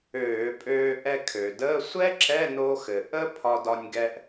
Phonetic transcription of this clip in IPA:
øː˧˩˧ pʼ øː˧ ʔ ɛ˧ kʰ ø˩ d əː˧˥˧ sʷ ɛ˥ ǁ ɛ˧˥˧ n o˧ x ɘ˩ ʔ ə˥ pʰ ɒ˧ d ɒ˧ nʲ ɡ ɛ˧ ʔ

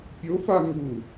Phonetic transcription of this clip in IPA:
pʲ o f a ŋ u

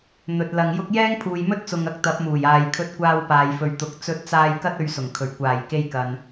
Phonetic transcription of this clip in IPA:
n̪ ɵ˨ t̚ l ɐ˨ ŋ j ʊ˥ k̚ j ɛː˥ ŋ pʰ uː˨ j m ɵ˥ t̚ t͡s ʊ˨ ŋ ɐ˨˥ k̚ t̪ ɐ˨˥ p̚ m uː˨˩ j aː˨ j kʰ ɵ˧ t̚ kʷ aː˧ w p aː˨ j f ɵ˨ ɥ t̪ ʊ˨ k̚ t͡s ɵ˧ t̚ t͡s aː˧ j k ɐ˥ t̚ ɵ˧ ɥ s ʊ˨˩ ŋ kʰ ɵ˨˩ ɥ kʷ aː˨˩ j k e˧ j k ɐ˨ n

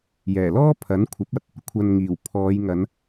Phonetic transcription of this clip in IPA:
j ɛː˨˩ l ɔː˥ pʰ ɐ˨˥ n kʷʰ ɐ˨˥ p̚ ɐ˨˥ t̚ | kʷʰ ɐ˨ n ŋ iː˨˩ w pʰ ɔː˨˧ j ŋ ɐ˨˧ n

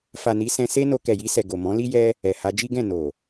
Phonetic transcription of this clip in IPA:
f a˨ n i˨˦ s ɛ̃˧ s e˦ n o˧ k ɛ˨ j i˧ s ɛ˨ ɡ o˨ m ɔ̃˨˦ l i˦ j ɛ˦ | ɛ˨ h a˧ d͡ʒ i˦ ɡ ɛ̃˦˨ n o˨

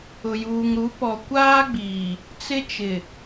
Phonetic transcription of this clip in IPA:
ʊ˨ j uː˨ ŋ ɾ u˨˦ p ɔ˨ kʷ aː˦ ɡ͡b iː˨ | t͡s ɪ˦ t͡ʃ ɪ˨

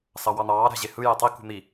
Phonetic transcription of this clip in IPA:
s ɑ w ɑ n̪ ɑː ɾ æ̤ ʑ e h ɯ j e tˤ i k ṳ n̪ i

